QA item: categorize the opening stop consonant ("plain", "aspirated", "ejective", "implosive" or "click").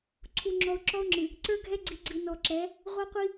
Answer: click